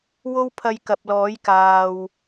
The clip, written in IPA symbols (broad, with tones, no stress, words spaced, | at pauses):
wo˥wpʰɐ˧jkɐ˨p̚ lɔː˨˥jkaː˨w